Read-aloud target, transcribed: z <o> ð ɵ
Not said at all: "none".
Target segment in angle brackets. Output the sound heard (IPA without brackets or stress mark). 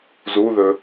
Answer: u